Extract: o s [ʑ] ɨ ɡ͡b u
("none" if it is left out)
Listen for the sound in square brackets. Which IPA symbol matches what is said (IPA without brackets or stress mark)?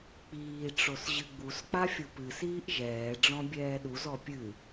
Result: ʑ